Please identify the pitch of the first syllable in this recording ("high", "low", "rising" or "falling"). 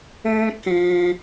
high